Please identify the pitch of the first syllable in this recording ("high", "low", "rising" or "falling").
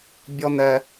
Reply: high